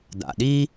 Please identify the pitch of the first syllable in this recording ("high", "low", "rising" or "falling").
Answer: low